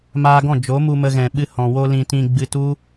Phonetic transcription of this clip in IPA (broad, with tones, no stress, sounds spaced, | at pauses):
m aː˧ ɡ ɔ̃˦˨ d͡ʒ o˨˦ m u˧ m ə˧ ɣ ɛ̃˨ ɓ ɨ˧ h ɔ̃˨ w o˧ l ĩ˧ t ĩ˧ ɡ͡b ɨ˧ t u˦